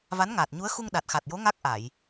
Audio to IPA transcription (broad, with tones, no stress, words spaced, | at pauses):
va˧˥nŋaː˨˩t̚ɲu˧˥ə̯ xu˧ŋ ɗa˨˩t̚xa˨˩t̚jo˧˥ ŋa˦˥k̚ʔa˨˩˨j